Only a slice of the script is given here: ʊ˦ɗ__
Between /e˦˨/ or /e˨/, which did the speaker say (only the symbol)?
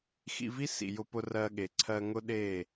e˦˨